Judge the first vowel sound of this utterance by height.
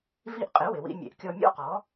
high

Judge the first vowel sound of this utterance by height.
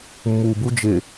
high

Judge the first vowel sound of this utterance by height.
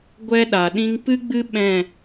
mid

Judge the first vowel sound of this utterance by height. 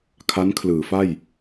low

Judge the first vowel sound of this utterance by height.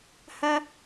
low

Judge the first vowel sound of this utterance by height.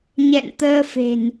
mid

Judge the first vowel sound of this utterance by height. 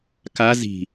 low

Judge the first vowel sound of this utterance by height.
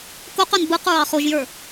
mid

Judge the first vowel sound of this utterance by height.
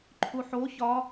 high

